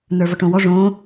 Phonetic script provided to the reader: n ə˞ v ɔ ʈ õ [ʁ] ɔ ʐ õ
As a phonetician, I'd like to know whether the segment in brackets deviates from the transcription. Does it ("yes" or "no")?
yes